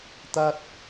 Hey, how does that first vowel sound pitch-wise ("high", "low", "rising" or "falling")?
high